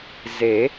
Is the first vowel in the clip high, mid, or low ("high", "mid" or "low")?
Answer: mid